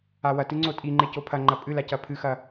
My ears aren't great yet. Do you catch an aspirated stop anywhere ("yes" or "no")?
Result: yes